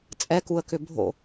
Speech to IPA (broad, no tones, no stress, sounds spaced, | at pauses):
t͡sʼ ɛ k u ə̯ k ʏ bʱ o̰